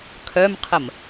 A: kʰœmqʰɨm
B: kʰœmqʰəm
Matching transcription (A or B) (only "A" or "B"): B